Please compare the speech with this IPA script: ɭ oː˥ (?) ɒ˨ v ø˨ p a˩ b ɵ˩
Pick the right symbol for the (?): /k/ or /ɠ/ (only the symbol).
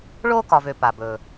k